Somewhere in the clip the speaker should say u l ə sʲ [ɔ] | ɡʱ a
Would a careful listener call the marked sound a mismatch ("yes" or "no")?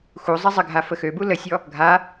no